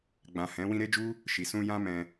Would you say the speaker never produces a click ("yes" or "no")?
yes